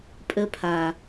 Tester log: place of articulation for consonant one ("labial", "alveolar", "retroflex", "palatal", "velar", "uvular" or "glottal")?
labial